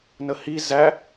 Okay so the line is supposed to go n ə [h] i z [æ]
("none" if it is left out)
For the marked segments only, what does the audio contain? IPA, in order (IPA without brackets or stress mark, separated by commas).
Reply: h, æ